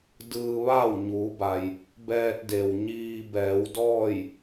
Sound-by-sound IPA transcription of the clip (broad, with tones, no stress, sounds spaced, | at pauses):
d ɯː˧ ʋ aː˥˨ w ɲ uː˩˧ b a˩ j | b ɛː˧ t̚ d e˩ w ɲ iː˧ b ɛː˩˧ w d ɔː˥˨ j